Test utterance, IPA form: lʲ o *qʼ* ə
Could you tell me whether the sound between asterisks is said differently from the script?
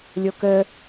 yes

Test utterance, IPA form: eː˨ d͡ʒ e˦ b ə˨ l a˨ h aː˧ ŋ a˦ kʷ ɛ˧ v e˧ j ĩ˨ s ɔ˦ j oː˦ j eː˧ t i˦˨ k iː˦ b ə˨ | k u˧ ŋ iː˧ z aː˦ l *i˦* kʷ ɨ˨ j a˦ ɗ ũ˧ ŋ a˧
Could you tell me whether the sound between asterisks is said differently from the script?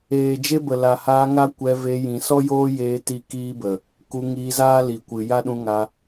yes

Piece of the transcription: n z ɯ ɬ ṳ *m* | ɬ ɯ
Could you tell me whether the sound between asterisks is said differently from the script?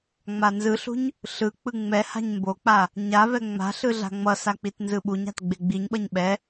yes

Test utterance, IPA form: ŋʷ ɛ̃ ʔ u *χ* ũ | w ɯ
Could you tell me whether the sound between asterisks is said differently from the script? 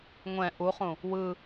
no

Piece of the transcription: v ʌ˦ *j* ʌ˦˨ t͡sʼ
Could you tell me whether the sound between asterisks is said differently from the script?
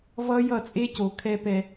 no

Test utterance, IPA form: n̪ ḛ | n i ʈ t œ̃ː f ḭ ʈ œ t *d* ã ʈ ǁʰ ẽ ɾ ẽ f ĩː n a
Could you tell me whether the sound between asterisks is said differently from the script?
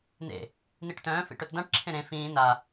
no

